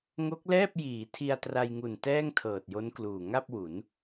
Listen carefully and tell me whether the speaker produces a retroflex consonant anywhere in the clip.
no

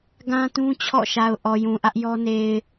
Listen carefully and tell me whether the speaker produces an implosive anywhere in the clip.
no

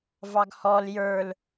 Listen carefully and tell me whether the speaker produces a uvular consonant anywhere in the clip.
no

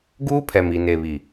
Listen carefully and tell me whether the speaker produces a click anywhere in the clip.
no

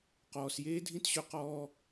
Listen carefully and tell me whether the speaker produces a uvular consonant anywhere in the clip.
yes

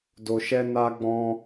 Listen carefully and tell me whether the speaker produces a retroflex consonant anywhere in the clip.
no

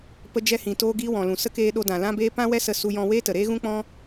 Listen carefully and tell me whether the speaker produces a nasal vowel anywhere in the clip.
yes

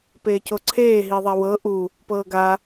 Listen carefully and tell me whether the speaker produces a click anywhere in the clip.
yes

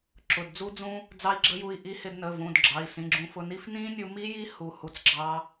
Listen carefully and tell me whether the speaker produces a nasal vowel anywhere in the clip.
yes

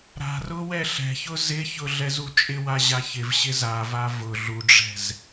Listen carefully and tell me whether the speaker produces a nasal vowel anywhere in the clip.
no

